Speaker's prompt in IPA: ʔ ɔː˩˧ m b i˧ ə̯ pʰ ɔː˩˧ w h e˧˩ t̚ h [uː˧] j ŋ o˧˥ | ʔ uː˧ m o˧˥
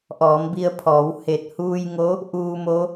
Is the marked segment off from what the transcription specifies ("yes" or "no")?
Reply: no